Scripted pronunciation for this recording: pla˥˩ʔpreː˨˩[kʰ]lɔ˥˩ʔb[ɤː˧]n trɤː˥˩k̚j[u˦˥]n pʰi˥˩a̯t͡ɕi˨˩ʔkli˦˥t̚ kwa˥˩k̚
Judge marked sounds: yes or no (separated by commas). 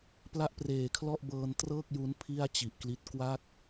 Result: yes, yes, yes